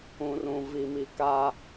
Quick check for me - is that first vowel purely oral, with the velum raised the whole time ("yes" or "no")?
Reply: no